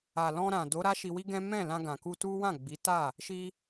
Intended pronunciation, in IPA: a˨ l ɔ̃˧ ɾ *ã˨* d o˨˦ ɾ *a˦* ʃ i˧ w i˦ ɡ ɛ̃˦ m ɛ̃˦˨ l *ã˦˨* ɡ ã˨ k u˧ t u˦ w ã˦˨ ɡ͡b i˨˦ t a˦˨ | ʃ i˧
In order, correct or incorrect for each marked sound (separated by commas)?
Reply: correct, correct, incorrect